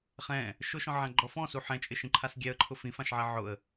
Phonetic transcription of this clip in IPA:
χ ɛ̃ | ʃ ʊ ʃ ɔ̃ ʕ ã ɡ͡ǃ ɔ f ɔ̃ s u ħ ɛ̃ t͡ʃʼ ɪ ʃ ĩ ǃʰ a s ɡʲ ɛ ə̯ ǃʰ ʊ f ĩ f ã ʃ ʕ ɛ ʕ ʊ ə̯

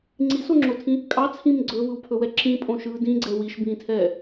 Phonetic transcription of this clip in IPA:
ŋ͡ǀ i s o ŋ͡ǁ o tʰ ĩ | kʼ ɑ t͡sʰ ĩ m ɡ͡ǀ ɵ v ɯ w pʰ ɵ w ɛ ǁ ĩ pʼ õ ʃ ɯː d ĩ ɡ͡ǀ ɛ w i ʃ b ĩː tʰ ɛː

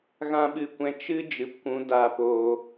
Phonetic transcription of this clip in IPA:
ɣ ã˦ ɓ ɨ˦˨ kʷ ɛ̃˦ t͡ʃ ɨ˦ d͡ʒ ɨ˨ p kʷ ũ˨˦ d aː˧ p oː˧

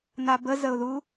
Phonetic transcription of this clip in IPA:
n a b ə z ə ʊ̯ ð u

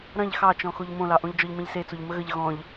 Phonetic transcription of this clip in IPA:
ɾ ɐ̃ ʎ x ɑ t͡ʃ ɔ̃ x o ʎ m õ l ɑ ʔ õ ʎ d͡ʒ ɔ ʎ m ẽ ʎ s e t͡s o ʎ m ə ɣ ə ʎ ɣ ɔ̃ ʎ

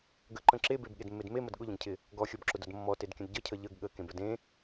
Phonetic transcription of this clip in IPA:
ɡ ə ǃ ə̃ ǁ e b e b ɠ e d mː e d m e m ə d ɠ ʊ ʎ ə̃ ɡ cʰ ɪ | ɡ ɔ xʲ ɔ b ǁ ʊ d ʊ d mː ɔ t e d kʲ ə̃ d ɟ ə cʰ ə ʎ ə ɡ ɠ ə k ẽ b ə d ẽ

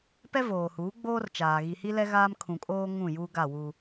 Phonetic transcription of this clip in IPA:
p ɛ˦ v oː˨ h uː˨˦ ɡ͡b oː˦ r t͡ʃ aː˨ ɣ i˨ h i˦ l ɛ˦ ɣ aː˦ m kʰ ũ˨ kʼ oː˦ ŋ ũ˦˨ j u˦ ɡ a˦˨ w u˦

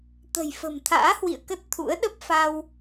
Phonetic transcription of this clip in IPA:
t̪ ə̤˨˩ j f ə̤˨˩ m t̪ʰ a̰ː˧˥ h w ḭ˧˨ ə̯ k ə˦˥ t̚ t̪ʰ ṵ˧˥ ə̯ ɗ ə˦˥ p̚ f a˧ w

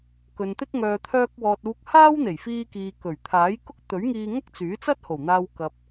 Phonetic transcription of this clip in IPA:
k ɵ˨ n t̪ ɪ˥ k̚ ŋ œː˨ t̪ʰ œː˧ k̚ w ɔː˨ t̚ uː˧ k̚ h aː˥ w n̪ e˨˩ j f iː˧ k iː˨ k ɵ˨˩ ɥ t̪ʰ aː˨˥ j k ʊ˥ k̚ t̪ ɵ˨˥ ɥ ŋ iː˧ ŋ ɐ˥ k̚ t͡s yː˨˥ t͡s ɐ˥ t̚ h o˨˩ w n̪ aː˧ w k ɐ˨ p̚

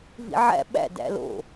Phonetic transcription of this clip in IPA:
v ḭ ʕ æ̰ ɓ æ̰ d æ̰ l o̰

